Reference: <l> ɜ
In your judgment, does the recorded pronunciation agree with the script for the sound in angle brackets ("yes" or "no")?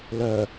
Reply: yes